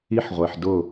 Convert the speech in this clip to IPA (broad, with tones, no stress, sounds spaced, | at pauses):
i˦ ħ ʁʷ e˨ ħ d ʊ˦˨